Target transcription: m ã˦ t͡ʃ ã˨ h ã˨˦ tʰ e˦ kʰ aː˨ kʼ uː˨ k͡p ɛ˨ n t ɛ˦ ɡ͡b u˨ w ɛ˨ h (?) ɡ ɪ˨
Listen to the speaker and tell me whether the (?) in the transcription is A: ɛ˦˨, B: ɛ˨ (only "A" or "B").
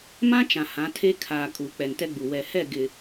A